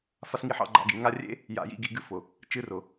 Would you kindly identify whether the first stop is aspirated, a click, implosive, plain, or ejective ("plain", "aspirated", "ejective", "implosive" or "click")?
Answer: click